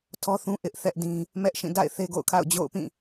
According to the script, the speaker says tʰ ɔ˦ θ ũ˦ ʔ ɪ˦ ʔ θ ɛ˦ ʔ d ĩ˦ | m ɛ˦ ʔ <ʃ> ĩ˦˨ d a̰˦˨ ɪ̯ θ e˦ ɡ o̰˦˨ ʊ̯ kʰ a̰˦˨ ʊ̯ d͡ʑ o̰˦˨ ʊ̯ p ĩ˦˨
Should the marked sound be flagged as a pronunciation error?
no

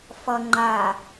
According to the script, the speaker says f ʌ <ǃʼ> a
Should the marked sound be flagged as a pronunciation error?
yes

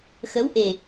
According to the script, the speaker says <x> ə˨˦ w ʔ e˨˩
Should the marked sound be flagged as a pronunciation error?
no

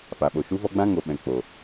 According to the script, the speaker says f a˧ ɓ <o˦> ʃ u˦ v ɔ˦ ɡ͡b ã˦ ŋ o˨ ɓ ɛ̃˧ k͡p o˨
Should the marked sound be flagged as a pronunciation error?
yes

